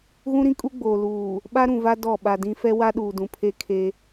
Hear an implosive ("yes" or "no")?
yes